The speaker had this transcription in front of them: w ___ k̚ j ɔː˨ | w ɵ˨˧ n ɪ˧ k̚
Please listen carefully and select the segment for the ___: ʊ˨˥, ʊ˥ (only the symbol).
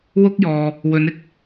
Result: ʊ˥